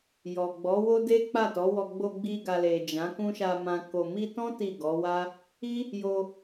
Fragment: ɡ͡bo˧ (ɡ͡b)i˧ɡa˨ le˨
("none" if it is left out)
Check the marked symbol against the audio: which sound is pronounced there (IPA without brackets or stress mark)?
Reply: ɡ͡b